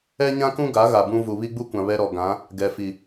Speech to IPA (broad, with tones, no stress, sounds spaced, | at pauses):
ɛ˦ ɲ ã˦ k ũ˦ ɡ a˨˦ ɣ a˨ b ũ˦ v u˨ β i˦ ɡ͡b u˦ kʷ ã˨ β ɛ˦ ɾ ɔ˨ ɡ ã˨˦ | ɡ ɛ˨ f i˨